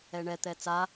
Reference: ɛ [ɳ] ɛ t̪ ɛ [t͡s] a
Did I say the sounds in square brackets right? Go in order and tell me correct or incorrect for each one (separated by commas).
correct, correct